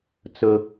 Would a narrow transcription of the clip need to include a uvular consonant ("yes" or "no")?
no